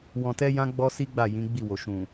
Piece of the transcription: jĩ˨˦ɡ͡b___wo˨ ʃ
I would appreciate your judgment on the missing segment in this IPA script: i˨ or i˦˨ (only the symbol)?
i˦˨